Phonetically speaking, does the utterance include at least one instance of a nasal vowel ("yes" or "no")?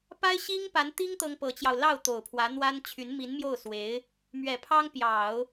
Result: no